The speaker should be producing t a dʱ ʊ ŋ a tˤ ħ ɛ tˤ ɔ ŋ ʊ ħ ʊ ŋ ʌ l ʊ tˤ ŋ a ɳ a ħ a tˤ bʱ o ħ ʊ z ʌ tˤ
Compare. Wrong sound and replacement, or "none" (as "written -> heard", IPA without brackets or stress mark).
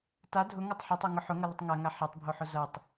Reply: ɳ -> ŋ